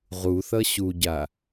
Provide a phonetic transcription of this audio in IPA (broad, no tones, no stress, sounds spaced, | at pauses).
ʁ u θ ʌ ɕ u ɟ a